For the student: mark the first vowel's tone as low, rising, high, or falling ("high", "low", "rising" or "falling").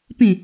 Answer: falling